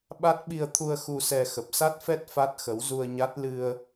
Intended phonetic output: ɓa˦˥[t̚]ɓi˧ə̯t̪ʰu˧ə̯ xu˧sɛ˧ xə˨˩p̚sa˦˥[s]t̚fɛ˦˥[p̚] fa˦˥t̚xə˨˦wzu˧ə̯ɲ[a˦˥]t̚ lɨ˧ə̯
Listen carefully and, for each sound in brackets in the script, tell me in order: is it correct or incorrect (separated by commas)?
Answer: correct, incorrect, incorrect, correct